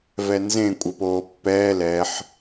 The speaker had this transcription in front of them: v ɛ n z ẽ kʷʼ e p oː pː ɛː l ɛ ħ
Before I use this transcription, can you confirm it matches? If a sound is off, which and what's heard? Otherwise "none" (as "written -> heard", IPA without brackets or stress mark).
none